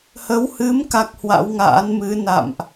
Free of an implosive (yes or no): yes